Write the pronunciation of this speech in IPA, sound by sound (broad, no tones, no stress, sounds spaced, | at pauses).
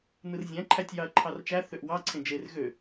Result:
n ɯ r zʲ æ̃ ǃʰ æ tʲ j ɑ ɐ̯ ǃʰ ɑ r t͡ʃ æ θ ø ʔ w ɑ ǀʰ ẽ d͡ʒ e r ɣ ø